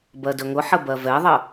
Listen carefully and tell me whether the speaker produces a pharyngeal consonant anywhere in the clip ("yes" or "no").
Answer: yes